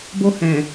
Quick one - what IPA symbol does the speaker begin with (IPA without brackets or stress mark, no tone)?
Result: b